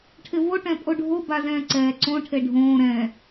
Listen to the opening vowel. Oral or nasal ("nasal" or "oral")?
oral